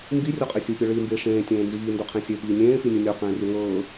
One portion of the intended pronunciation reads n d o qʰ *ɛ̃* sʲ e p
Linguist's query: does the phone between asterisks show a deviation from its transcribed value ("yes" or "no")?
yes